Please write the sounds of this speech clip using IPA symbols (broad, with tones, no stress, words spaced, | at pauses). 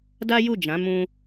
da˦ju˦˨d͡ʒã˨˦ mũ˦